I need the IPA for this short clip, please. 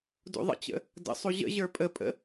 dṵðˤə̰t͡ɕə̰ | də̰sˤu ʑə̰ ʑə˞pʼəpʼə̰

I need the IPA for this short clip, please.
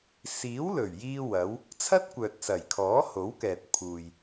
siː˨˥wlɵ˨˩ɥ jiː˥wɐ˨˥w | t͡sʰɐ˥t̚kʷœː˨t̚sɐ˨˩jkʰɔː˨˥ ho˨˥wkɛː˨t̚ pʰuː˨j

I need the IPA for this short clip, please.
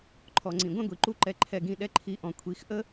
ǃʰɔ˨ŋ͡ǀĩ˨ ɡʷɛ̃˦ɡʷi˨ǃu˦ǃɛ˧ ǃʰɛ˧ɡĩ˧ ɗɛ˧ǃʰi˨˦ ʔɔ̃˨kʷʰi˨˦x ʔə˦

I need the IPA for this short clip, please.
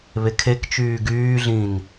βekʰek t͡ʃyːɡyːɮĩːn

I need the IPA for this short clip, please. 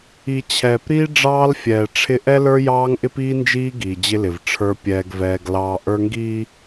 i˨ t͡ɕʰɛː˨pɾiː˦ ɖ͡ʐɑː˦lfʲɛː˨ ʈ͡ʂʰɪ˦ ʔɛ˦lə˞˦jɑː˦ŋʔɪ˦p iː˦nd͡ʒiː˦ ɡiː˨d͡ʑɪ˦lɪ˨v ʈ͡ʂʰə˞˦ pʲɛː˦ɡvɛː˦ɡlɑː˦ ʔə˞˦ŋɡiː˦

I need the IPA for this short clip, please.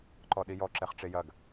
ǃɔɗijɔ ǁɛχʈ͡ʂejɐɡ

